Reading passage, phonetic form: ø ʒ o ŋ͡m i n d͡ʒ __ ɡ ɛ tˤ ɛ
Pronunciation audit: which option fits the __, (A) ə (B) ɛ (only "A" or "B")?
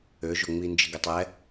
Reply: A